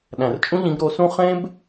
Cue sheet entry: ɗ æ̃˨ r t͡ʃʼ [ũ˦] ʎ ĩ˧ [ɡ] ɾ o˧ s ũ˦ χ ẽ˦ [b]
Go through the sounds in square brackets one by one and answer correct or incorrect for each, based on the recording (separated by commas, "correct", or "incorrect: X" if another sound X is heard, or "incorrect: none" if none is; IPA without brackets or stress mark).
correct, correct, correct